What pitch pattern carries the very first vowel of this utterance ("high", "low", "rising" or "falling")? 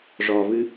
low